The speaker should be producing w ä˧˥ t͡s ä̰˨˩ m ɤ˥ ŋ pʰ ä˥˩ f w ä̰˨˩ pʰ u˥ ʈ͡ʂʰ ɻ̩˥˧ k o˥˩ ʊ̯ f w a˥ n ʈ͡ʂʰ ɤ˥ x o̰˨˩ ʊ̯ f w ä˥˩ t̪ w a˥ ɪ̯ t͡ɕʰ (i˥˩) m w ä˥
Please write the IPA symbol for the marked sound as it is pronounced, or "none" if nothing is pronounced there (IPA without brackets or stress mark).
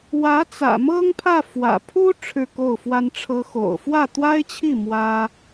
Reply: i˥˩